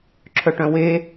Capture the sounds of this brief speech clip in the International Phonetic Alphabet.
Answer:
ǁʰ œ ʈ œ̃ w e

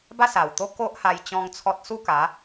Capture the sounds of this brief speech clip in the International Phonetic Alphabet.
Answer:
b a˥˧ s a˨˩ w t̪ o˦ k o˦ ʔ h a˧ j t͡ɕ ɔ̃˦ ŋ t͡sʰ ɔ˦ t̚ s u˥˧ k a˨˦

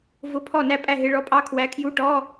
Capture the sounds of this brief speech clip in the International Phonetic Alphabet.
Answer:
v ʊ˧˥˧ pʰ ɔ˥˩ n æ˥˩ pʼ æ˥˩ ɦ ɪ˧˥˧ ɭ ɔ˧˥˧ pʼ ɑ˧˥˧ kʰ w æ˨˥ kʰ j u˧˥˧ ʈ ɔ˧˥˧

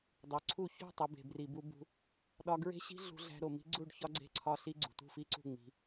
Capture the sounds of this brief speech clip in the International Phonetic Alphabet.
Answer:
dˤ o˨ ǀʰ u˦˨ ç o̤˦˨ tˤ i˨ b e̤˨ b r i˨ b u˧ b ṳ˧ | ɗ ɒ˧ ɡ ɹ e̤˦ ɕ i̤˦ ɮ ṳ˧ ɮ æ̤˧ ɾ o˨ m i̤˦ ɡ͡ǀ u˦˨ ɖ ç ɒ˦ ɡ͡ǀ e̤˦˨ ǀʰ ɒ˦ ɬ i˦ ɡ͡ǀ ṳ˨ t ṳ˦˨ f i˦ ǀ ṳ˦˨ ŋ͡m i̤˧

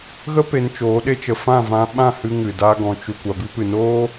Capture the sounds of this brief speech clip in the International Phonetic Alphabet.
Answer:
ɣ ə˦ p e˧ n t͡ʃ oː˨˦ ɗ e˦ t͡ʃ ə˧ f ã˦˨ v ã˧ ɓ ã˦˨ h ɨ˧ ŋ ɨ˨ d a˦ ɡ ɔ̃˧ t͡ʃ u˨ kʷ a˨ b i˧ p ɨ˨ n oː˦

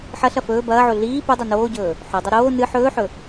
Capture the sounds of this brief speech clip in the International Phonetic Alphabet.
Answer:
ħ ɐ ɬ ɐ f ɵː b ɐː ʕ o ɮ iː p u dˤ o n oː ɟ ɵː | ħ ɵ dˤ ɐ ɾ oː n ɨ ħ ɵː ħ ɵ

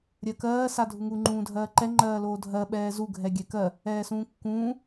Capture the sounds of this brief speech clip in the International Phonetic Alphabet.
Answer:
ɾʲ ɜ k ɜː s a dʱ u ŋ u ŋ͡ǃ ũː dʱ ɜː ǃ ɛ ŋ͡ǃ ɜː l oː dʱ ɜ ɓ ɛː z u ɡʱ ɛ ɡʲ ɛ k ɜ | ɛː s ũː kː ũː

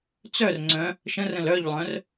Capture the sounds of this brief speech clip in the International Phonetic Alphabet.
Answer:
t͡s œ r ŋ͡ǀ œ̃ | ʃ ə̃ r ə̃ l œ ʎ lˠ œ̃ r

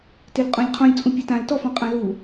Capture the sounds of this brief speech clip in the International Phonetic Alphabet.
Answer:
t e l qʼ ɔ̃ lʲ qʰ ɔ̃ lʲ t͡sʼ ũ pʲ ʌ t ã l t ɔ f ɔ̃ qʼ ã l u

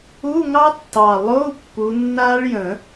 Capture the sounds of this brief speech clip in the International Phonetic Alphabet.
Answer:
u˧˥˧ ŋ ɑ˦˥ tː ɑ˨˩ lˠ o˧˥˧ u̯ pː u˨˦ nː a˦˥ ɭ j ə̃˨˩˦

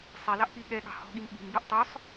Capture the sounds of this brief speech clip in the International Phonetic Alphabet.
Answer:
sˤ ɛ l ɑ ʔ p i ɠ ɛ ɠ ɑ̤ h ɔ̤ ɠ i m ɓ i̤ m b y ʔ tˤ œ sˤ

